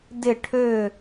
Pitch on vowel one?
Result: falling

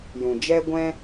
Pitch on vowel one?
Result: low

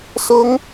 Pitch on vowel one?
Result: high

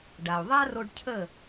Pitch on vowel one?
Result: low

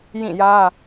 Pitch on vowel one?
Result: falling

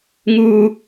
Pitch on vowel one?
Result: high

